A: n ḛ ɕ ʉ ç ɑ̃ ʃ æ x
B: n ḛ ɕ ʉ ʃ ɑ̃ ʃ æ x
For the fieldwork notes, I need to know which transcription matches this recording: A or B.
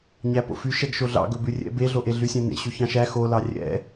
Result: A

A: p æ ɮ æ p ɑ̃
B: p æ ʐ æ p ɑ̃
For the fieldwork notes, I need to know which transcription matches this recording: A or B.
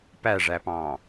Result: B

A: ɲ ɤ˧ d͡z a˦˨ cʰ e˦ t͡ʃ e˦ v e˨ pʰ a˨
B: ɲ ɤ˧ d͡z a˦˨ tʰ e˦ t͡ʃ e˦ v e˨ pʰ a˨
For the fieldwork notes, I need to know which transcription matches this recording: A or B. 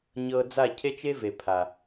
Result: A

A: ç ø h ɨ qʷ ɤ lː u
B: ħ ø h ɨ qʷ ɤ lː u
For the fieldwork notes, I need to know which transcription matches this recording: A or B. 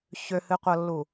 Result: A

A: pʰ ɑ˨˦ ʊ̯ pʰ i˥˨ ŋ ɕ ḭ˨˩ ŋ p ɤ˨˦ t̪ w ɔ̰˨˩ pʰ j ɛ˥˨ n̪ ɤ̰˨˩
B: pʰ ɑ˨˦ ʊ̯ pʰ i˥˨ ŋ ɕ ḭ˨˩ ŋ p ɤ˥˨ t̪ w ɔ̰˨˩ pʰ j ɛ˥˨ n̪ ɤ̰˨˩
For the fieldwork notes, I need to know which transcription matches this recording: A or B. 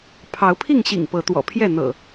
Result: A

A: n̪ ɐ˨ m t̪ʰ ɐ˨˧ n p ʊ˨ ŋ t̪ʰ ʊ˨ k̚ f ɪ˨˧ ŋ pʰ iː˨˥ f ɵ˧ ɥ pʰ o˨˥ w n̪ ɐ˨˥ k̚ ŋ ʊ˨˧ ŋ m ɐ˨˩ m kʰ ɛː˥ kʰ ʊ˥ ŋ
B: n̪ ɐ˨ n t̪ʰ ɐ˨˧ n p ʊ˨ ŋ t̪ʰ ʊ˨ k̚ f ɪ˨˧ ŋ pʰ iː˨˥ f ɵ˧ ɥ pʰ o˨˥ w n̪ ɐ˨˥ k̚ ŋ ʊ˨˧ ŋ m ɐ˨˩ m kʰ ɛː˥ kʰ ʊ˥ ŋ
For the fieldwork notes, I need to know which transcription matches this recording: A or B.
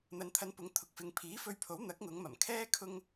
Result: B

